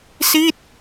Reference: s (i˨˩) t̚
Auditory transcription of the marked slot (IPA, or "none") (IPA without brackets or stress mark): i˥˩